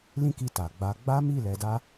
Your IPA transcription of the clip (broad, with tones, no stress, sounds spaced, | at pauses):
l ĩ˦ k i˧ t a˨ ɡ͡b a˧ ɡ͡b a˦ m i˦˨ l ɛ˧ d a˦